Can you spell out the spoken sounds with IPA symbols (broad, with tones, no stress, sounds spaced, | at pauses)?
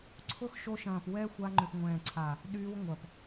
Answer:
ǀʰ ʊ˦ x ʃ o˧ ʃ ɐ̃ː˨ p w ɛ˦ xʷ a˧ ŋ͡ǃ ʏ˨ p ŋʷ ɛ̃ː˨ ǀʰ a˨ | ɗ yː˧ w ŋʷ ɐ˨ p